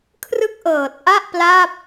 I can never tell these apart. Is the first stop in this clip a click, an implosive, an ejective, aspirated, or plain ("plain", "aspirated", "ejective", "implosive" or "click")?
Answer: aspirated